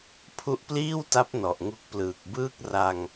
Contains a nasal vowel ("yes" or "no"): no